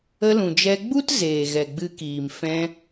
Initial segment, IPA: ə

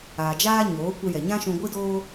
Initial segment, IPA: aː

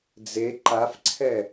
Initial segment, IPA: d͡z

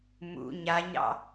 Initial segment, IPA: m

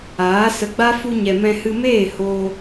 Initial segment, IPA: aː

